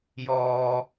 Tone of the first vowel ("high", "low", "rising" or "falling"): low